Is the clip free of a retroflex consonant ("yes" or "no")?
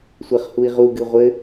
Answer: yes